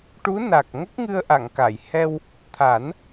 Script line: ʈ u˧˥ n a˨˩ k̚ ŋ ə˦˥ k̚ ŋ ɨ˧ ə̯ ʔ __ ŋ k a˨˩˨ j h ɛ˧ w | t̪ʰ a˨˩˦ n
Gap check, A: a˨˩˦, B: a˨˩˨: B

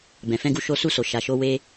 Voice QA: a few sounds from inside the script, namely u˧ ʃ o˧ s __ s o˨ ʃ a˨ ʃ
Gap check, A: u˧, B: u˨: A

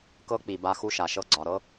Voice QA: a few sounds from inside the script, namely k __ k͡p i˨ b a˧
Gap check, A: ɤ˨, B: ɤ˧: B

